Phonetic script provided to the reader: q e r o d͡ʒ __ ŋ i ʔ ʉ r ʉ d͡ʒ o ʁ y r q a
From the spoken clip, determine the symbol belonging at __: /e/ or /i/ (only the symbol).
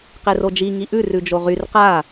i